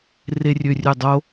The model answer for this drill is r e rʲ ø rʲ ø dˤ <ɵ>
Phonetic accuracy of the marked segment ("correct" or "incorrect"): incorrect